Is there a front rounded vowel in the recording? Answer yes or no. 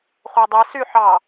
yes